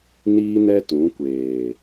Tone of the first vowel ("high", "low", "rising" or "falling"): high